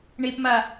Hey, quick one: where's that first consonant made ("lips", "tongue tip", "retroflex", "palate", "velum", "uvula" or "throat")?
retroflex